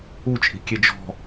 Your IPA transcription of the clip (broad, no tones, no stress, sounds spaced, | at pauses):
u t͡ʃʼ i̤ kʲ e d͡ʒ ɔ̤